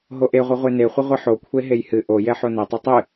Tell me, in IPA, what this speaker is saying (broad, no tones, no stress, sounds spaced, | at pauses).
ɦ o ʔ e ʁʷ e ʁʷ e n e χʷ ɨ ʁʷ ɨ ħ o kʷʰ e ɦ e j h ɨ ʔ o j ɛ ħ o n e tˤ o tˤ ɨ